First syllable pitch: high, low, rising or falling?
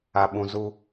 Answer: low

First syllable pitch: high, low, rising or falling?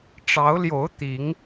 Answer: rising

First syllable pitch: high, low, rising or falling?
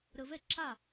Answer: low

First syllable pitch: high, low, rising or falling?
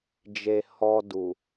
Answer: low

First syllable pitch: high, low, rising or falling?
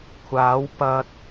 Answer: rising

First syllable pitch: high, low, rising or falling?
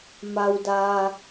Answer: low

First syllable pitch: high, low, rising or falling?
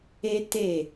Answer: high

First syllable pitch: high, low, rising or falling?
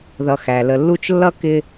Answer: low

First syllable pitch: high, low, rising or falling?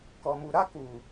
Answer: low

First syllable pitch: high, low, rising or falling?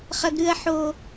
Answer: high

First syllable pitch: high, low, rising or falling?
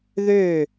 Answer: falling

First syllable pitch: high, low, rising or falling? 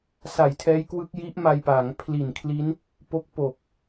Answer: low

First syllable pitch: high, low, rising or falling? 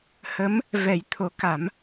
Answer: rising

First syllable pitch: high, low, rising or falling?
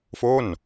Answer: falling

